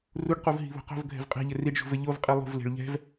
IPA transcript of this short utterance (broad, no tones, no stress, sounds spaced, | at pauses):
r u ɖ q u v ɦ i̤ β o̤ q o̤ v ɡʱ ɛ̤ v qʼ ɛ̤ ʎ ɘ r i ɖ ʒ ṳ v ɘ ʎ o v qʼ i lˠ ṳ v l e̤ ɭ ʎ ɛ̤ v